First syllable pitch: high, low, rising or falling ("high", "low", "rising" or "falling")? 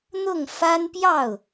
falling